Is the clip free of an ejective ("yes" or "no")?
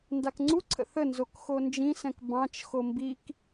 yes